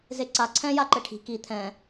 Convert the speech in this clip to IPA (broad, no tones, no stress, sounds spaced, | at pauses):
z e ǀ a ǀʰ ɛ̃ j a ǃ ɘ ʈʰ i̤ k i t̪ʰ ɛ̃